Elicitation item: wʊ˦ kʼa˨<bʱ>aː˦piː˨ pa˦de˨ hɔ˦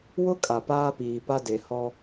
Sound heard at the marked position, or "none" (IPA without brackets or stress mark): p